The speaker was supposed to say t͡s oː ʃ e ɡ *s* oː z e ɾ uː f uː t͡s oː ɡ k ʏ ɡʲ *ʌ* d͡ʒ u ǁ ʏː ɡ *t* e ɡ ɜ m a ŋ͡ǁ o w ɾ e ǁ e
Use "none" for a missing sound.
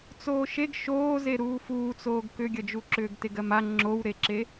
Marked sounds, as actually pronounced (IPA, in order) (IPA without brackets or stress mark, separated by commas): ʃ, ʌ, t